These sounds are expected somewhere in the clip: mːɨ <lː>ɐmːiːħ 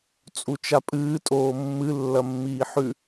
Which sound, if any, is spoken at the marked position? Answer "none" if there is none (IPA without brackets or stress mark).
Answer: lː